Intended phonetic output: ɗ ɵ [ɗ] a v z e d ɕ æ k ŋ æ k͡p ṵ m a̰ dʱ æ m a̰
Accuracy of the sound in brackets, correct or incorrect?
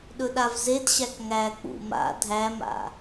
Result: correct